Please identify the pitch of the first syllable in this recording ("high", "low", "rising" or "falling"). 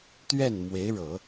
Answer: falling